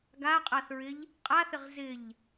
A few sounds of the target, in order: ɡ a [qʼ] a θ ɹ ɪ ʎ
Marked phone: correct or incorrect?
correct